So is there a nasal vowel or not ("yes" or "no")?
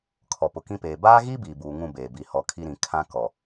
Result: yes